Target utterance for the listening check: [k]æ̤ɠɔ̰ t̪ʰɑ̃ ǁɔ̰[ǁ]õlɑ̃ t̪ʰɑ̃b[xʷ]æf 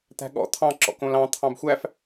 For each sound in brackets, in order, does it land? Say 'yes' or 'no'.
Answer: no, no, yes

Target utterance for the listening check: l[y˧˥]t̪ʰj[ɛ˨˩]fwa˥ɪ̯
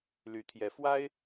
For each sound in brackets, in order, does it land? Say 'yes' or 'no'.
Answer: yes, no

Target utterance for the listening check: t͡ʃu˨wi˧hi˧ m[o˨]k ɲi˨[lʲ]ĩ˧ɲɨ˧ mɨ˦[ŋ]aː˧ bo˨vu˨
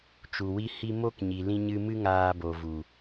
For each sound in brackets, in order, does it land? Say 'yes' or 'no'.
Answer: no, no, yes

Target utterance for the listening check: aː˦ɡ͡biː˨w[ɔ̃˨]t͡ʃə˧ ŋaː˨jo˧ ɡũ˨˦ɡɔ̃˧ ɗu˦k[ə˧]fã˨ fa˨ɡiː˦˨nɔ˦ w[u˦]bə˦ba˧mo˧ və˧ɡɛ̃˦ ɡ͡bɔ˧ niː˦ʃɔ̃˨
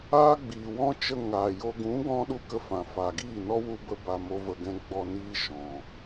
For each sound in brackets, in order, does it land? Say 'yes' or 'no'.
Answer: no, yes, yes

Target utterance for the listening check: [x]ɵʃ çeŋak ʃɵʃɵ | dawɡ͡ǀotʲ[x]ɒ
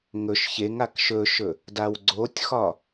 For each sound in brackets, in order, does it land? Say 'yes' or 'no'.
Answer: no, yes

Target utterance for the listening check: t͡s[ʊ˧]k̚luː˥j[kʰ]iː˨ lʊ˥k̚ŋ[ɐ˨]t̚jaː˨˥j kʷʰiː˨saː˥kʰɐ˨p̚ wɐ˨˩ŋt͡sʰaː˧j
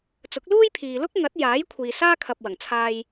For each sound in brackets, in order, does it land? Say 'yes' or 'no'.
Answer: no, no, no

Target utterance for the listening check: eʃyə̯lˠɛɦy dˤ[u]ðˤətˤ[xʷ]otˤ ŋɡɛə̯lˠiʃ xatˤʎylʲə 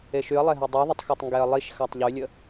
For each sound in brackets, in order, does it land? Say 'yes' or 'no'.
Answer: no, no

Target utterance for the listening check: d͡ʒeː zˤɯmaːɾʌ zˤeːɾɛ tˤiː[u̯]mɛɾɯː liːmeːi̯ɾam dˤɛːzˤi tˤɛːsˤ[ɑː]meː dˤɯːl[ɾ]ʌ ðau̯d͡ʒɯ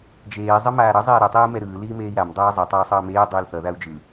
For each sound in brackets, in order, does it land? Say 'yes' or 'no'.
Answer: yes, no, no

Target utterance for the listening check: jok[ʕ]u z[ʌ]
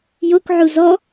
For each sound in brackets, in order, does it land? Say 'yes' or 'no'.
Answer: yes, no

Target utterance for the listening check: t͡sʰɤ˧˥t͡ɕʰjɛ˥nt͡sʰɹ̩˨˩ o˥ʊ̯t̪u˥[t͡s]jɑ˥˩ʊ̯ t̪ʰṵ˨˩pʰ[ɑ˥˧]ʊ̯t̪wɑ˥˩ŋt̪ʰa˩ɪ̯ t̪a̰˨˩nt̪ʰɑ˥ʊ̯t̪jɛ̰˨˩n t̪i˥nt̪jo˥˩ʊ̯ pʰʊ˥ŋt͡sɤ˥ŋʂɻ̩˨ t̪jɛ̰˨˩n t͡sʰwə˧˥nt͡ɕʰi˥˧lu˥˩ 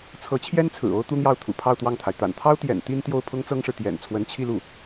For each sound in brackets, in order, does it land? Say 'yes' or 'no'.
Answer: no, yes

